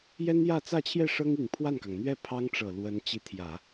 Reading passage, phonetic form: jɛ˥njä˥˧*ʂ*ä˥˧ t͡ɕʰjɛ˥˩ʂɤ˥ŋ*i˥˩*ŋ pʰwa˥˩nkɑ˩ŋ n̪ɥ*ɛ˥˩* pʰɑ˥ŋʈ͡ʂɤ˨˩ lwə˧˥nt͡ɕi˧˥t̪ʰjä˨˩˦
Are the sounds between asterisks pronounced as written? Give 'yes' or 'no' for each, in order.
no, no, yes

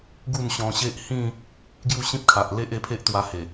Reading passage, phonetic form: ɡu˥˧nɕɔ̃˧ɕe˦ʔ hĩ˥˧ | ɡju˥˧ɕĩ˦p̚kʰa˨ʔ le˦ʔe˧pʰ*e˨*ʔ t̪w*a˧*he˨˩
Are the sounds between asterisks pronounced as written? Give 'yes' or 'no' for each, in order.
no, yes

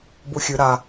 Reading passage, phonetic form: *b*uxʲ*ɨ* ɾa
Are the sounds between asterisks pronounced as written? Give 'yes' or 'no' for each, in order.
yes, yes

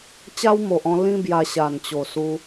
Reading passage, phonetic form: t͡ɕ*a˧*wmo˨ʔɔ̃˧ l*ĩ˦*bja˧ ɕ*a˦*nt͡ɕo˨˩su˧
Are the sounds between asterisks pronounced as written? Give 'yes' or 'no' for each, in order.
no, yes, no

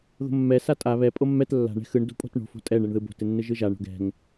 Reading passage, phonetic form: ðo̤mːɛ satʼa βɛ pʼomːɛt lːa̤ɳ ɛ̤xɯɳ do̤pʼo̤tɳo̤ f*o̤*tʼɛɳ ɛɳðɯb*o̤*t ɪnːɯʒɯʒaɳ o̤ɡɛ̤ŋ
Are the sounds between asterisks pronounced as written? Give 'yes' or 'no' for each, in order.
yes, yes

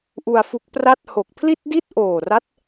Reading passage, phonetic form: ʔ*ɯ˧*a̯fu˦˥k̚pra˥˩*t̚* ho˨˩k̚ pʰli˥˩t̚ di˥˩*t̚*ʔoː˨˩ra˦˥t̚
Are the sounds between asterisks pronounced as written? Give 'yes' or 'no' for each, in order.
no, yes, yes

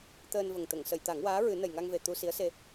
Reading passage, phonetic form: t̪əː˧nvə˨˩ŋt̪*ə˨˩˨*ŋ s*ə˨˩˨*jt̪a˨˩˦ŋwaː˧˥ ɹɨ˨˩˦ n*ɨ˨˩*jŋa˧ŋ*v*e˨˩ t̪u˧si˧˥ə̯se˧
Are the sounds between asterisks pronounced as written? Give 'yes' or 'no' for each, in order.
yes, yes, no, yes

